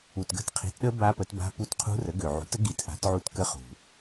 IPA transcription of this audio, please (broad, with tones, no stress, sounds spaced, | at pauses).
u˩ t ɡ ə̤˦˥ t qʰ i̤˩˥ t ɗ ə˦˥ b a˦˥ p ə˩˥ t b a̤˦˥ p u˦˥ t qʰ ṳ˦˥ r ə˩˥ ɡ ø˩ ʕ ṳ˩˥ t ə˩˥ ɡ i˩˥ t ʔ a̤˩˥ t ʕ u˦˥ t k ə˦˥ χ ṳ˩